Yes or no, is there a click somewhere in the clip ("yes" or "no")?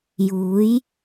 no